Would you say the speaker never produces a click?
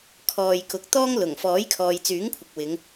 yes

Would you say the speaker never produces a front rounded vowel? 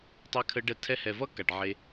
yes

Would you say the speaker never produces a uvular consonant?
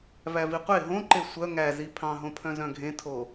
no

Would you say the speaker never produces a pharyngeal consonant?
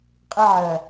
no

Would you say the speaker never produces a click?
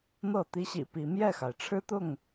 yes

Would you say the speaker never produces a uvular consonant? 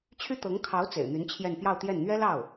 yes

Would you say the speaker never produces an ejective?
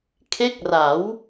yes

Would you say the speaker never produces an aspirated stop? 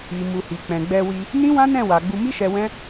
yes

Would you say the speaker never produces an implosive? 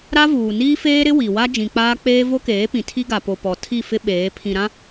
no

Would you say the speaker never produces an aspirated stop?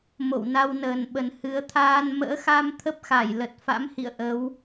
no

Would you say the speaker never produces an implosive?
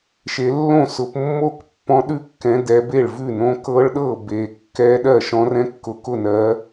no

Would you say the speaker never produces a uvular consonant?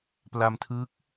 yes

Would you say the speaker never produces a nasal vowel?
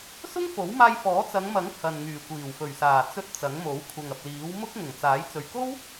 yes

